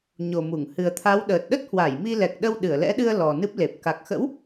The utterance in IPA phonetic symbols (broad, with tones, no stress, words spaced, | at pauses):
ɲo˨˩mu˧˩ŋ hɨ˨˩ə̯t̪ʰa˨˦w ɗəː˨˩t̚ɗə˦˥t̚hwa˧˩j mi˧lɛ˨˩k̚ɗə˧w ɗɨ˧˩ə̯lɛ̰˧˥ɗɨ˧ə̯ lɔ˨˩nɨ˦˥p̚le˨˩p̚ ka˨˩k̚xə̰˧˥w